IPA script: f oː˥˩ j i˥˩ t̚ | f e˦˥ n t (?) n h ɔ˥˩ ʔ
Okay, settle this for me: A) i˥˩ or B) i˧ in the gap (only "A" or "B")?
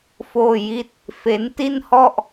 A